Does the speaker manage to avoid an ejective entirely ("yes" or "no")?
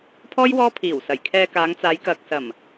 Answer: yes